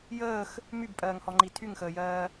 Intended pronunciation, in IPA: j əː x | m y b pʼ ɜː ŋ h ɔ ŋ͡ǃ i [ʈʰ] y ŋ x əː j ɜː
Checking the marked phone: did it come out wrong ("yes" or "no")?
yes